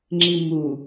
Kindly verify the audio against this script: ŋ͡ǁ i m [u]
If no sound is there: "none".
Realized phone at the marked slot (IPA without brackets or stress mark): u